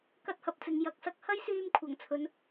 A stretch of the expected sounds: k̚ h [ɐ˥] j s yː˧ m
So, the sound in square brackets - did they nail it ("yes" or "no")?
yes